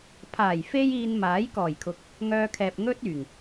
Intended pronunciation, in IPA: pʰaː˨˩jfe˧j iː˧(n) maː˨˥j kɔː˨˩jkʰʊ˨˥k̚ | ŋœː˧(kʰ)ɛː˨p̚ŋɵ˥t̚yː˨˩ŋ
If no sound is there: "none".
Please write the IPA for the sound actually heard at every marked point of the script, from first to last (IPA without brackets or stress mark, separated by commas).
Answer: n, kʰ